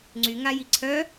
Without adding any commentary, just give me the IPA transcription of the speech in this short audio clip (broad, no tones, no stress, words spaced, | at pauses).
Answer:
ŋ͡ǀyŋa jiǀʰœ